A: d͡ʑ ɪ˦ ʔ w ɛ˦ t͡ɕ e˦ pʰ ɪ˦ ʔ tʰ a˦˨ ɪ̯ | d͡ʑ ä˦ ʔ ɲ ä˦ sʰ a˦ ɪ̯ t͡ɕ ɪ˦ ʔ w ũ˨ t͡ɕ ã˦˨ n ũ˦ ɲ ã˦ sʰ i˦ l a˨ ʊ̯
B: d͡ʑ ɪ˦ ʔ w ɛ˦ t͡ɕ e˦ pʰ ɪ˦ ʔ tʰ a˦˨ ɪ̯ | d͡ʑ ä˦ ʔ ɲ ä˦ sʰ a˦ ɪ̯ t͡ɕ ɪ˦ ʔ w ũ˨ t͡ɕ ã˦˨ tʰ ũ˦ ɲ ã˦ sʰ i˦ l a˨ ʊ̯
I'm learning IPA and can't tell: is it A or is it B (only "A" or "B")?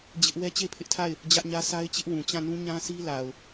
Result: A